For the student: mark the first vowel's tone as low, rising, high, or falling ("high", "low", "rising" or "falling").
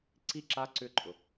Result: falling